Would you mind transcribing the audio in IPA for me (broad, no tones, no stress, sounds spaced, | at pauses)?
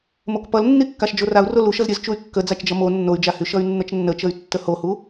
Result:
m o k p ʌ l nː i kː a ʃ d͡ʒ o r a u̯ r o l u ʃ ʌ z ɾʲ ə z t͡ʃ u y̯ kː ə d͡z a t͡ʃ d͡ʒ ʌ m o nː o y̯ d͡ʒ a h y ʃ ʌ y̯ nː ə t͡ʃ nː ə t͡ʃ ə y̯ tː ə h o h u